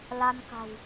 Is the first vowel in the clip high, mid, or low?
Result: low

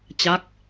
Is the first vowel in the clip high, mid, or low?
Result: low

